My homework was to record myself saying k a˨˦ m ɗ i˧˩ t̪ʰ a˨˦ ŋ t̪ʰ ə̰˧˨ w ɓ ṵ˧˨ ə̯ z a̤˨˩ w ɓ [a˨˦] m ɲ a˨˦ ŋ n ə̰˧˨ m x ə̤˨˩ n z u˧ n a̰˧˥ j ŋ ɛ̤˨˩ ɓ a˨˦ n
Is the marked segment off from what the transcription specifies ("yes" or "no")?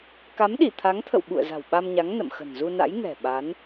yes